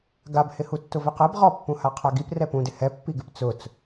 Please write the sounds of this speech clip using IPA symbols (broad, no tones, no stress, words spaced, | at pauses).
ɡabhɪhu tːʊvɪqɛb ʁɔpːũha qʰaɡip rɛpũdɪ hɛpːiɡɪp t͡sʊt͡s